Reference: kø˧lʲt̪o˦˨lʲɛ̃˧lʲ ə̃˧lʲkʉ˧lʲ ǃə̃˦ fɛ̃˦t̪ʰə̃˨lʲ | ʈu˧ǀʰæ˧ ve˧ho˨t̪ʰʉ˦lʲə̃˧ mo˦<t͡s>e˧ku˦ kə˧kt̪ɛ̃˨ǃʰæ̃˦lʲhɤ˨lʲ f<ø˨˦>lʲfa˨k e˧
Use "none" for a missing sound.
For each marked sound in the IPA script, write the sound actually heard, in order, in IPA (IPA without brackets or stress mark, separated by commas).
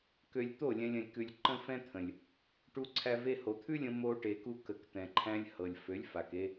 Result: ʈ, ø˨˦